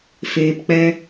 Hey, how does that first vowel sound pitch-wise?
low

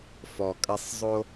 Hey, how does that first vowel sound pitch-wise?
low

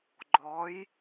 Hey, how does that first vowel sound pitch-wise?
rising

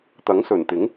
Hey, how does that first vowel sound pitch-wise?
rising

